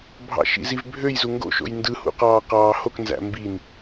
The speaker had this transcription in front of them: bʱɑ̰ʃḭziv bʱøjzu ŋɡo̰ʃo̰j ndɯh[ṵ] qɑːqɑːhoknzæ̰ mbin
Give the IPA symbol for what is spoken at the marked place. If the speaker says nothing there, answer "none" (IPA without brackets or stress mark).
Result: ṵ